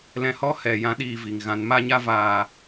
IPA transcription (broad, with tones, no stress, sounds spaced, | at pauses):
l ɛ̃˧ h ɔ˦ h ɛ˨ j ã˦ ɗ iː˦˨ v i˨ ŋ ɣ ã˨˦ n m a˦ ɲ a˦ v aː˧